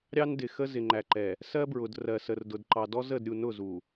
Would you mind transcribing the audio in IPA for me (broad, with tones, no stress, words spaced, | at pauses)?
ɾʲɑ˦ndɪ˨xə˦ zɪ˨ŋ͡ǃæ˨ǃɛ˨ | sɜ˦bɹʊ˨d rɜ˨sə˨rdʊ˨d ǃɑ˨dɔ˦zə˦˨dɾʲu˨ nʊ˦˨zu˨